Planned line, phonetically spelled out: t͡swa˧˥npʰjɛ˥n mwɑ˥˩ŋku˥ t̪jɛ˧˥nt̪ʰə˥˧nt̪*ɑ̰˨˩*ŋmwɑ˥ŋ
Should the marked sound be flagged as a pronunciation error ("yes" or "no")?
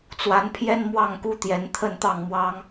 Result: yes